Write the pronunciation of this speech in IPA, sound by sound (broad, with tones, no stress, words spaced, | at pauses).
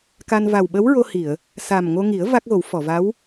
ka˧n va˨˩wɓə˧˥wɹo˧hi˨˩˨ə̯ | sa˨˩mŋo˧ŋi˨˩˦ə̯ va˦˥k̚ɣo˨˩˦w fɔ˨˩˨va˧˥w